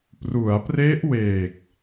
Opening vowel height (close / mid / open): close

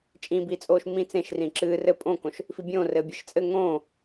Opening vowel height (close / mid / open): close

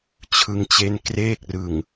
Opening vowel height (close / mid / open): close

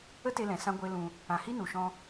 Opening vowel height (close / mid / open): mid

